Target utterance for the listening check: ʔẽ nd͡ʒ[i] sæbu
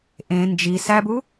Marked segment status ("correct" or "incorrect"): correct